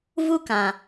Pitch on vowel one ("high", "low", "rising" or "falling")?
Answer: high